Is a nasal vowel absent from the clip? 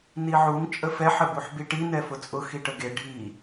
yes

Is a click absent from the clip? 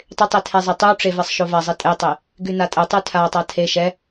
yes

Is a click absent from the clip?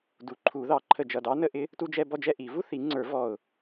no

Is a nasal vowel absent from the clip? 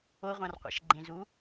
no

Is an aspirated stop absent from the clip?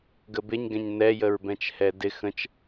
yes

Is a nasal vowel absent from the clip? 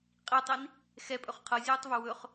yes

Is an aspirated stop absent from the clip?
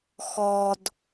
yes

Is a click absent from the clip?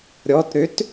yes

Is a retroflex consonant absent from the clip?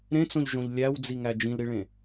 no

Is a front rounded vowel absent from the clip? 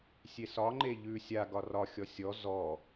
yes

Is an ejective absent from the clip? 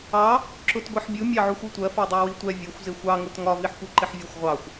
yes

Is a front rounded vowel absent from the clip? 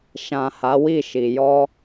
yes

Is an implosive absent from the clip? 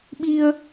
no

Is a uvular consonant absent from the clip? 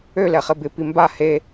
no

